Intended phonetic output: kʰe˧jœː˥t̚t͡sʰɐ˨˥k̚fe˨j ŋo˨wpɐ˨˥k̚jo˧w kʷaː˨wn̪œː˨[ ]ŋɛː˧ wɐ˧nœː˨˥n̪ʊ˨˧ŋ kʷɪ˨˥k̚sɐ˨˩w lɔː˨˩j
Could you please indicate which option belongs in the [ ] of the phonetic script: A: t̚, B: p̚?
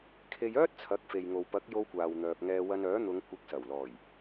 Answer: B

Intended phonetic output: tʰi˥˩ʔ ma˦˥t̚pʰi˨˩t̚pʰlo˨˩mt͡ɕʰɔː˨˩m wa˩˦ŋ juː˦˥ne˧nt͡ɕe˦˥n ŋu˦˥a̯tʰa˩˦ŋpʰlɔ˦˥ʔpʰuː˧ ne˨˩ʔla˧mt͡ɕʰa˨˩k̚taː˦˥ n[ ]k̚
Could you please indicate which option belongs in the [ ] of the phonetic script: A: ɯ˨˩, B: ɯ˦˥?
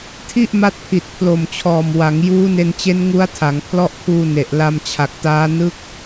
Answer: B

